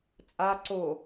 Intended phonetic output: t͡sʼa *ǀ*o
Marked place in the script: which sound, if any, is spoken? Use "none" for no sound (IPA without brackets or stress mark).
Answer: ǀ